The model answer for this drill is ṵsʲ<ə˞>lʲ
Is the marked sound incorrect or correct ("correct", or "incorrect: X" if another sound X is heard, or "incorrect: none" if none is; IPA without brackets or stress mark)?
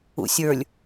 correct